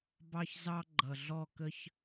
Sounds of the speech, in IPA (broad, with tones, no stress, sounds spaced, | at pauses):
b ɑ˦ ç z ɑ˦ ɡ͡ǃ ʌ˨ ɮ ɔ˦˨ k ə˦ ç